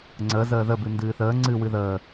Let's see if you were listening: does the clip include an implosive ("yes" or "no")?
no